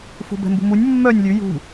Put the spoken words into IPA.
fṳbɛ̤mbṳmunʲ mːœnʲ lʲʉ jṳ

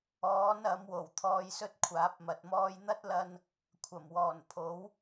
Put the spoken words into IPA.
ɔː˨˥n ɐ˨˥mwo˨˩w t̪ʰɔː˧jsɵ˥t̚kʷʰaː˨˥p̚mɐ˨t̚ mɔː˧jn̪ɐ˥t̚lɐ˧n | kʷʰɐ˨˩mwɔː˨˩npʰo˨˥w

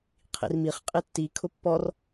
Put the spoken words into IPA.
qʰḭrmiχ qʼitːi kʰʊpːɔr

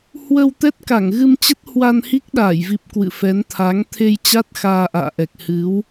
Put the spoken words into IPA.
hwə˧w t̪ɛ˦˥t̚ka˧˩ŋɣɨ˧mt͡ɕə˦˥t̚ hwa˧nhi˦˥k̚ɗaː˧˩jvi˨˩p̚ kwɨ̰˧˨fɛ˨˦nt̪ʰa˨˦ŋ t̪ʰe˧jt͡ɕa˦˥t̚ xaː˧ʔa̰ː˧˨ʔɛ˨˩k̚ hɨ˨˦w

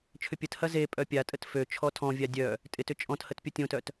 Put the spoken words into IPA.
t͡ʃʰʏpʲəthɐ ze pʼœpʲatʼət fø t͡ʃʰɔtʰɔ̃vʲa dʲœ | tʼɪtʏ t͡ʃʼɔ̃thət pʲotʲõtœt

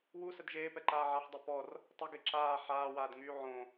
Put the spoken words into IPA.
wusəd ʒeːpɛǃaː ʕaħdˤi pɔr | tˤəɡe ǁaː ħaːwaːdŋyː ʕõ

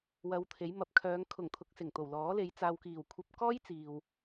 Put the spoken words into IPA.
wɐ˧wt̪ʰe˨˥jmɐ˨˥p̚ kʰœː˨˧ŋ kʰʊ˨˩ŋ t̪ʰʊ˨˥k̚sɪ˨˩ŋ t̪o˨˩wlɔː˨˥le˨˧j t͡saː˨wkiː˨˩wkʷʰɐ˧p̚ kɔː˥jt͡siː˨w

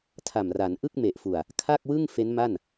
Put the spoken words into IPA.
tʰa˨˩mra˩˦n ʔɯ˥˩k̚me˨˩ʔfu˨˩a̯ | kʰa˥˩k̚wɯ˥˩ŋ fe˦˥nma˥˩n

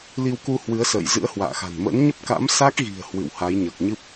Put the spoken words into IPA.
li˧wku˧ hwɨ˨˦ə̯sə̰ː˧˨j zɨ̰˧˥ə̯hwa̰ː˧˨ xa̤˨˩nmə̰ː˧˥n ɲə˦˥p̚ka̰˧˥msa˦˥k̚ɣi̤˨˩ə̯ hwɨ̰˧˨w ha˨˦jɲəː˨˩k̚ɲɨ˦˥p̚

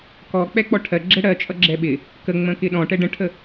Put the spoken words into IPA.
kɔ k͡pɛk͡pɔʈʰɜ ɡ͡ǁɛɽɜt͡ʃʼʌ ɡ͡ǁɛɓɪ | kə ŋ͡mə̃kɪɗɔ̃ ʈɛɖə̃ʈʰə

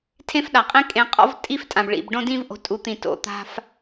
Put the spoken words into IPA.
tʰẽ˦fɗa˨qʼĩ˦ kʼẽ˧qʼɔ̰˦v tʼi˦ftʼã˨bɭḭ˨b ɖõ˧dĩ˧vʔo̤˨ tʼu˨˦t̪ĩ˨to̰˨ t̪a̤˧f

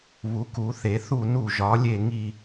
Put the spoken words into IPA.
βu˧˥ku˧˥θe˧˥ θu˥˧nu˥˧ʒɒ˧˥ lʲe˥˧ŋi˥˧

